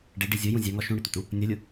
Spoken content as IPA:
ɖ e ɖ i zʲ o j ũ zʲ a ŋ ɔ ʃ ũ ɽ ɪ t̪ ʊ t u | nʲ ɔ lʲ u

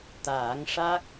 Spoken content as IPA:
t̪ aː˨˩˦ ŋ ʂ a˦˥ k̚

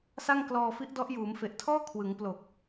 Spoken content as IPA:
s a˥˩ ŋ k l ɔː˧ f i˦˥ ʔ d ɔ˦˥ ʔ j uː˩˦ m f e˨˩ ʔ tʰ ɔː˥˩ kʰ w ɯ˩˦ ŋ p l o˨˩ k̚

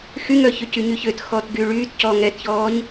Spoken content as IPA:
x y ŋ œ ç ø c y ɲ y ç ø t x ɔː t ɡ yː ɭ yː t c ɔ ŋ ɛ t ç ɔː ɲ

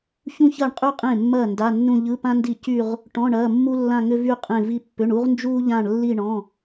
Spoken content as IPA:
ç ũ˥ ç ɐː˥˩ ɳ qʼ y˥˧ qʼ ẽ˥˩ mː ɐː˥˩ n d a˧˥˧ nː ũ˥˧ ʎ ɯ˧˥˧ p ã˥ n d i˥˩ c y˥˧ ʁ | ʈ ɔ̃˧˥˧ ɳ ɐː˧˥˧ mː u˥ lː ã˥˧ ŋ ʏ˥ v y˥˧ qʼ ẽ˥˧ v i˥ pː ʏ˧˥˧ ɳ u˥ ʁ n d͡ʒ uː˥ ʎ ã˥˧ ɳ lː i˥˧ ɳ ɔ̃˧˥˧

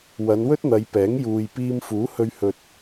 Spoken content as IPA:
w ɐ˨˧ n w ɵ˥ t̚ n̪ ɐ˨˧ j p ɛː˨˥ ŋ j uː˨ j p iː˧ m f uː˨˥ h ɵ˧ ɥ h ɵ˨ t̚

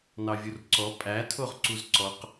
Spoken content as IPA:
n ɑ vʲ u r ǀ ɔ pʼ æ tʰ o ʁ ǀ u z ǀ ɔ q

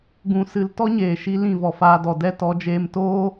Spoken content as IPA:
ɡ ũ˦ s ɨ˦ l t ɔ˦ ɲ eː˨ ʃ i˧ l ĩ˦˨ v ɔ˨ f aː˧ d ɔ˨ d ɛ˦ t ɔ˨˦ d͡ʒ eː˧ m t oː˦

